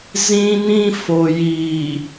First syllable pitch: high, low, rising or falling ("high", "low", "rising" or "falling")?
high